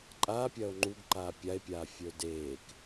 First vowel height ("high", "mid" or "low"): low